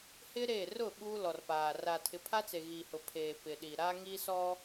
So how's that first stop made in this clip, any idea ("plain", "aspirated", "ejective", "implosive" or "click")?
implosive